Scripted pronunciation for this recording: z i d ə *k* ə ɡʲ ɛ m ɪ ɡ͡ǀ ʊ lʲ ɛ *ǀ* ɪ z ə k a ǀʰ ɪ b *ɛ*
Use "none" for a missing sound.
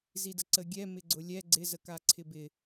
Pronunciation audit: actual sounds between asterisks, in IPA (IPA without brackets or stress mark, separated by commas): ǀ, ɡ͡ǀ, ɪ